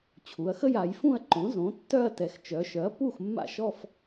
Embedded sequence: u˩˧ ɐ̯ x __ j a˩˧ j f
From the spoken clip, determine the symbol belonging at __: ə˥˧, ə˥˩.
ə˥˧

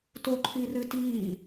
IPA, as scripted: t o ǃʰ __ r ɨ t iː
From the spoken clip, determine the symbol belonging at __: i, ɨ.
i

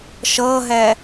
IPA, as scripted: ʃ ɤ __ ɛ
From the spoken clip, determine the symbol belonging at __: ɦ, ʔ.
ɦ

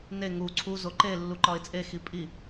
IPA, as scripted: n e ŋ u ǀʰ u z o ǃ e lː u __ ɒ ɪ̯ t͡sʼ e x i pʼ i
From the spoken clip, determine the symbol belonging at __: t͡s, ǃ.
ǃ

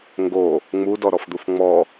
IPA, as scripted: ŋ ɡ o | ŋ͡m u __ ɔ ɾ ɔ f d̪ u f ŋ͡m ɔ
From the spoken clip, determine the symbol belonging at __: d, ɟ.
d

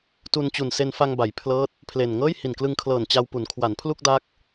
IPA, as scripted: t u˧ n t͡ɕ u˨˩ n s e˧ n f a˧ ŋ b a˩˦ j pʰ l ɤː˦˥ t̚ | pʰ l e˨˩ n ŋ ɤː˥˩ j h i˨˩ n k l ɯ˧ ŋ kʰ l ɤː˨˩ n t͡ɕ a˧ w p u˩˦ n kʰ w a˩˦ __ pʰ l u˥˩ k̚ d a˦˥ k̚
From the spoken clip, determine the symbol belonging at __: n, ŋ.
n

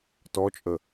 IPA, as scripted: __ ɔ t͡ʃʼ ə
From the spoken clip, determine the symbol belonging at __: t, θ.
t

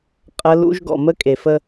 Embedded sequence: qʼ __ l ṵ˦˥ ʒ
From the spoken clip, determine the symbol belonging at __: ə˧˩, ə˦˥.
ə˦˥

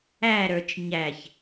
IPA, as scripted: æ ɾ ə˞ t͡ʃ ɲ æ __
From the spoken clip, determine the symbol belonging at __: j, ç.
ç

